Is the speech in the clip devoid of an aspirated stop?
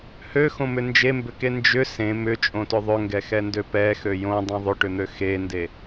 yes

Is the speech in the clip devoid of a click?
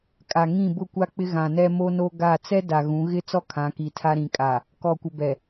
yes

